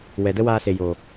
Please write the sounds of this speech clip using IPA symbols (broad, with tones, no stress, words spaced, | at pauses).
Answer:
wɛ˨də˦waː˧ se˨joː˨